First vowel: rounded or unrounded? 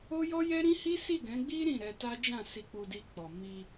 rounded